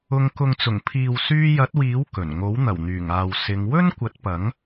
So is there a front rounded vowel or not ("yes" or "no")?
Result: yes